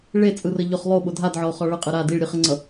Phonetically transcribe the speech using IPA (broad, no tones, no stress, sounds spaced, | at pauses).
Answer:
ɭ e t͡sʼ ɯ r ə ʎ ʊ χ lˠ o ɓ ʊ dʱ a d ʕ ɒ o̯ χ ɒ ɭ ə qʼ ɯ ɾ a d i ɭ ɾʲ ɯ χ ə ŋ͡ǀ ʌ